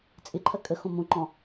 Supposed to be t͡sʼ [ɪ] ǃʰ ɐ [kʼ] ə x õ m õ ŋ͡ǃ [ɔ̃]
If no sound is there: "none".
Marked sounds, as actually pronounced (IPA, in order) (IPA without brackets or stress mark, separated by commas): ɪ, kʼ, ɔ̃